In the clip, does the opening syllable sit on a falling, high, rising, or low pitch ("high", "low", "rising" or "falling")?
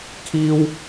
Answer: high